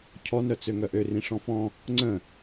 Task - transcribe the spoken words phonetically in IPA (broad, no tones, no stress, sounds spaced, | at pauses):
cʰ ɔ n œ t͡s ø ŋ œ ʔ ø r ĩ ʂ ɔ̃ f ɔ̃ | ŋ͡ǀ ə̃